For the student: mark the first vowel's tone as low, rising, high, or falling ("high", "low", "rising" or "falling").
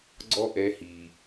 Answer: high